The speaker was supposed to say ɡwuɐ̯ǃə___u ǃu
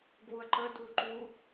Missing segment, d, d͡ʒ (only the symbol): d